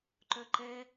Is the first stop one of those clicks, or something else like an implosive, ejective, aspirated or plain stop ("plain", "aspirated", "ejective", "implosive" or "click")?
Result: click